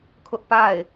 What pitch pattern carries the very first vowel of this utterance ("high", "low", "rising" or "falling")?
high